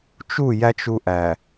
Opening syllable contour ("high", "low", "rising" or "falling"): falling